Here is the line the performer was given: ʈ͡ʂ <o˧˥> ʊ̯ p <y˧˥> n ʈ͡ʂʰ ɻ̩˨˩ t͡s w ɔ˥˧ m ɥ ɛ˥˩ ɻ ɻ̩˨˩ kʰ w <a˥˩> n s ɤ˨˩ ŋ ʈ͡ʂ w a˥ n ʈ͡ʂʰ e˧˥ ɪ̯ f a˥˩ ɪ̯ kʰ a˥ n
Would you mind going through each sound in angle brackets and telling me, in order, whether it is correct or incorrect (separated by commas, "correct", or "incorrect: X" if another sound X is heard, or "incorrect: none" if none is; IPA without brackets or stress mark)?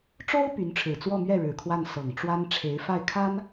incorrect: o˥, correct, correct